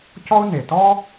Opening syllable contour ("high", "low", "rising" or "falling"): high